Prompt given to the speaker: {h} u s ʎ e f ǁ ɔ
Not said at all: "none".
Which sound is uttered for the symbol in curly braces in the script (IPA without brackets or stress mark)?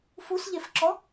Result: f